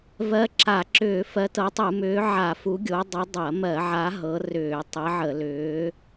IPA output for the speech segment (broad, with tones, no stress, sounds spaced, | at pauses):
v ɜ˨˦ ǁ a˧˩˧ ǁ ʏː˧˩˧ f ɜ˨˦ t ɤ˨˦ tˤ u˧˩˧ m ʏː˨˦ ʕ a˧˩˧ f u˨˦ ɡʲ o˨˦ dˤ ʏ˨˦ dˤ ɐ˧˩˧ m ɜ˧˩˧ ʕ a˨˦ ɦ ɤ˨˦ r ʏː˧˩˧ tˤ ə˨˦ ʕ ə˧˩˧ l ʏː˨˦